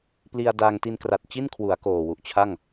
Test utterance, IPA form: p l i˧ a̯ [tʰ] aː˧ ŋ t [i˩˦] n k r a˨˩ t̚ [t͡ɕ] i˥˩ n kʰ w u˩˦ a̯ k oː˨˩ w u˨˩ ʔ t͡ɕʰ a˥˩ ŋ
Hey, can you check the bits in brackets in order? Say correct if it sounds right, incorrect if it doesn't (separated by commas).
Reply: incorrect, incorrect, correct